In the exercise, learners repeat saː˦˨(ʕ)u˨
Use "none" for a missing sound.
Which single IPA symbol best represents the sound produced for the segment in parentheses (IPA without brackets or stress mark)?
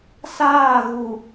ɣ